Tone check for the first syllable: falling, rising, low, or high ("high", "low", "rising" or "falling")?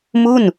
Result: falling